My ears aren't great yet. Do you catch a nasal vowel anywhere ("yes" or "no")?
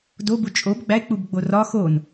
no